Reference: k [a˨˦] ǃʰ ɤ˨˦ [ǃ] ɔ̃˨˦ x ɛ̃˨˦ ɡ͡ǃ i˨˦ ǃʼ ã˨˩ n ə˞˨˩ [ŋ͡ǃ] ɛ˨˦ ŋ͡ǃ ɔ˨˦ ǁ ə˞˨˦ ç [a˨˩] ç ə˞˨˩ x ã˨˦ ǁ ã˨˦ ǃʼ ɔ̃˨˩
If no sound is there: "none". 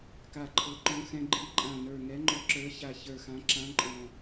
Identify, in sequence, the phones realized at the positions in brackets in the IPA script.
a˨˩, ǃ, ŋ, a˨˩

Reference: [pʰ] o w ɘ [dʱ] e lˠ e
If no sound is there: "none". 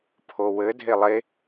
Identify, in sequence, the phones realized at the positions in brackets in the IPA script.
pʰ, dʱ

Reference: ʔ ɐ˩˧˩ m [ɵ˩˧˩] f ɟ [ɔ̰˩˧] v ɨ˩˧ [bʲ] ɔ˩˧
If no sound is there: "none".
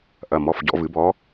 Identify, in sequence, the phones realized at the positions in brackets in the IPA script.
ɔ˩˧˩, ɔ̰˩˧, b

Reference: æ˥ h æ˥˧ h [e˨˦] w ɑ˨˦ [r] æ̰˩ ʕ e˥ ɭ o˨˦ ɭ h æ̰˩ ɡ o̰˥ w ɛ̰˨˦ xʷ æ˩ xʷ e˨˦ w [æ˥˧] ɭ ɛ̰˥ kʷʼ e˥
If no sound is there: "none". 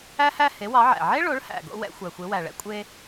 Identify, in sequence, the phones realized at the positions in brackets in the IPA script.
e˨˦, ʕ, æ˩

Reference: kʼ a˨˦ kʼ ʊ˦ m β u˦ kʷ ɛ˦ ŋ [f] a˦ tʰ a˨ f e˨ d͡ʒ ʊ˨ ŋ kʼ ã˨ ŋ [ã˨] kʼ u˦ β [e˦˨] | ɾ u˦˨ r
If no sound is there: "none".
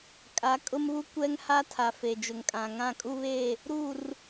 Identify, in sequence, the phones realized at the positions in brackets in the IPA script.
h, ã˦˨, e˦˨

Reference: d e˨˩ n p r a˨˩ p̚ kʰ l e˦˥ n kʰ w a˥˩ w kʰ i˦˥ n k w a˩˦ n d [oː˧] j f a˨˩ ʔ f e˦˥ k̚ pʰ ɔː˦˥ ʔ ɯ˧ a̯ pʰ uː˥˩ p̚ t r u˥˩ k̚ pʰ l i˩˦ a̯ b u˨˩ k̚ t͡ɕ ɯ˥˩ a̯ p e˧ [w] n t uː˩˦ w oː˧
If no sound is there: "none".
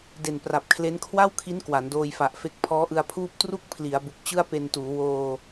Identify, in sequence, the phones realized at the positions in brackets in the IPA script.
oː˧, none

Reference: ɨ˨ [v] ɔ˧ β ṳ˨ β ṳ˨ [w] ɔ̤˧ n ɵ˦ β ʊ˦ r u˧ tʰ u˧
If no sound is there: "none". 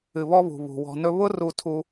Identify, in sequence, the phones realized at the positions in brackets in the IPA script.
β, w

